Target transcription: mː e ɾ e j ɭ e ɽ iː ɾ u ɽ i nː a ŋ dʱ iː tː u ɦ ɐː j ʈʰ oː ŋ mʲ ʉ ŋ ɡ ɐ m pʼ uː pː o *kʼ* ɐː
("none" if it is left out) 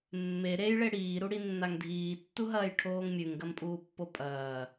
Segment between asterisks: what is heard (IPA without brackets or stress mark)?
pʼ